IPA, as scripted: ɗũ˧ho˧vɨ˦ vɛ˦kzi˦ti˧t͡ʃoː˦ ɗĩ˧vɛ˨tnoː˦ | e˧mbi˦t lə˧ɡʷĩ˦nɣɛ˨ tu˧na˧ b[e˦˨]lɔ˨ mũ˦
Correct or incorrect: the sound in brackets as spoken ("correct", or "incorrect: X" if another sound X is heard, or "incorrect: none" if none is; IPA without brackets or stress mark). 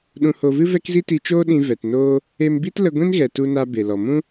incorrect: e˨